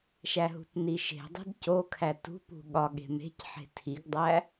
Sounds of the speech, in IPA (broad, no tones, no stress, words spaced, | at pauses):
ʃæɦṳtniʃe̤ dˤe̤dco kʰætṳ pṳɠɒɠe̤ me̤cħe̤ tʰiɡdˤæ